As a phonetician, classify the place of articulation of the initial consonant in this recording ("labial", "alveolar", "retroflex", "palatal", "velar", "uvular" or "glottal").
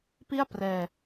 labial